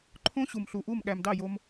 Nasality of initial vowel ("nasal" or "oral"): nasal